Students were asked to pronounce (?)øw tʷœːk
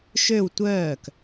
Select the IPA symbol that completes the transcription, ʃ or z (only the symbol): ʃ